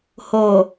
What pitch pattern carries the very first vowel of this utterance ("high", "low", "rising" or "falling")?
low